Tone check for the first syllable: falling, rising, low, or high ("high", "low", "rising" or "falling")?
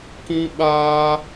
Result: high